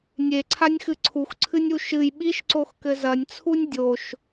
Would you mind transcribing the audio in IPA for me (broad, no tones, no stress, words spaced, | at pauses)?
nʲeǀʰanʲxɨ ǀʰuxǀʰɨnʲu ʃɨj ɓiʃǀoxkɘ zɐnʲt͡sʰunʲ dʲoʃ